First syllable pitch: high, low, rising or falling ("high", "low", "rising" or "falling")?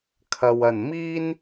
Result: low